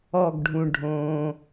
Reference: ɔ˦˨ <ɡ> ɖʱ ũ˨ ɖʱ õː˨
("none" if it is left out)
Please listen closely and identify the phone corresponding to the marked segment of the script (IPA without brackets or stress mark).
ɡ